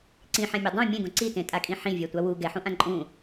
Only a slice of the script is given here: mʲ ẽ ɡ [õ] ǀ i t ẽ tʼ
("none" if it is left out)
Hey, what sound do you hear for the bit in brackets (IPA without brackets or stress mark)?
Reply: õ